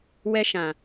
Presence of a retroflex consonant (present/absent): absent